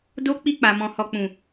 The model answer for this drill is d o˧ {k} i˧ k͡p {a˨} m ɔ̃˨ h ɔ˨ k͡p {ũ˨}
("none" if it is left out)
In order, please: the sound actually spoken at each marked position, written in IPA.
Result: k͡p, a˨, ũ˨

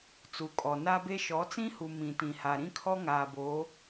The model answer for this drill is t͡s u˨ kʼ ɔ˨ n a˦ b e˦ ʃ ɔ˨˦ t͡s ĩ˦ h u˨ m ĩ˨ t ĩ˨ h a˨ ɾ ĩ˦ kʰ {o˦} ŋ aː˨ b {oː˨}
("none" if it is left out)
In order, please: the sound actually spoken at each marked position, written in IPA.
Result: ɔ˦, oː˨˦

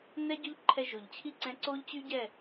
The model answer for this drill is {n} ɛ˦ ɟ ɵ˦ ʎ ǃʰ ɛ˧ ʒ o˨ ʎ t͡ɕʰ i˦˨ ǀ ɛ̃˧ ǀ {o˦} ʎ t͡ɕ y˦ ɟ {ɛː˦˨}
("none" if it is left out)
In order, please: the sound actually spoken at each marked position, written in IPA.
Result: n, o˦, ɛ˦˨

